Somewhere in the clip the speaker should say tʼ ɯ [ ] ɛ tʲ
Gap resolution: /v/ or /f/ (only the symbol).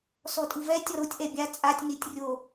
v